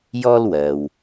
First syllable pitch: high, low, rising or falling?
high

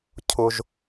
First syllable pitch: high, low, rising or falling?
low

